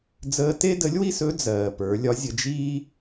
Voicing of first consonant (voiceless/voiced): voiced